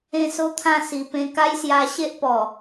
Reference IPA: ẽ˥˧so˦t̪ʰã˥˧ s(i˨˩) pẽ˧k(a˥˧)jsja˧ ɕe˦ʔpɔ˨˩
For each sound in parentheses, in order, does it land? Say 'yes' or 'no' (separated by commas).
yes, no